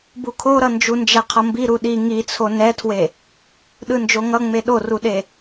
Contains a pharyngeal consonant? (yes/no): no